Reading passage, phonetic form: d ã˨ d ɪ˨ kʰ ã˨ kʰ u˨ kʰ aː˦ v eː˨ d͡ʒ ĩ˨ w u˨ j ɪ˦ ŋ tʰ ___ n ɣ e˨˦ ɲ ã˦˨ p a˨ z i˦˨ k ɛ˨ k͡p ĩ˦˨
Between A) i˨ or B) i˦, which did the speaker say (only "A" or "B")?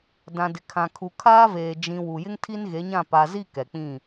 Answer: B